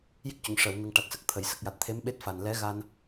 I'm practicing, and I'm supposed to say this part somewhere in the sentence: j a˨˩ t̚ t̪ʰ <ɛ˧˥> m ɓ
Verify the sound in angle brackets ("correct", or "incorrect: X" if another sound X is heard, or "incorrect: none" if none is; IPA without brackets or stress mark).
incorrect: e˧˥